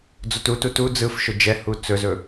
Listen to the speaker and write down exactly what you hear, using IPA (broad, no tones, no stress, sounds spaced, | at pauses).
d͡z o t u t u t u d͡z ɯ f ʃ ɵ d͡ʒ ɛ h u t͡s ɵ z ɵ